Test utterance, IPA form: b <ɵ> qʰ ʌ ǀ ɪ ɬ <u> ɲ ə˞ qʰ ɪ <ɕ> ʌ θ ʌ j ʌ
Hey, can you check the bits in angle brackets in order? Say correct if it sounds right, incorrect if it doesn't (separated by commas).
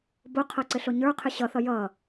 incorrect, incorrect, correct